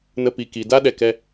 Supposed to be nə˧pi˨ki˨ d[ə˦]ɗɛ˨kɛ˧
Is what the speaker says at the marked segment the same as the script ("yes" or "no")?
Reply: no